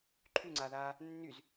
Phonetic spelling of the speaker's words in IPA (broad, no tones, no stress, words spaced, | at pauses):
ǃʰyŋ͡ǀaðaː | nːyz